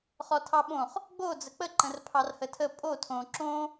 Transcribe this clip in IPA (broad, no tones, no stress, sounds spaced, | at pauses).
χ ɔ tʰ ɑ ɓ õ χ | ɡ͡b o d͡z ə k͡p ə ǃ ə̃ r pʰ ɑ r h ə tʰ ə pʼ o tʰ õ ǁ õ